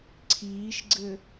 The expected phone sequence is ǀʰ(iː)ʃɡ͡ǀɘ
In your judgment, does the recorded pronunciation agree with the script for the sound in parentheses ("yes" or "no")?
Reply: yes